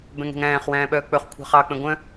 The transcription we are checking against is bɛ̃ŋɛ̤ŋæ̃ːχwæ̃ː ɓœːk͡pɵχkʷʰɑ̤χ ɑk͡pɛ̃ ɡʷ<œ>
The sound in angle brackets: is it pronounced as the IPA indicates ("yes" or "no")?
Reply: no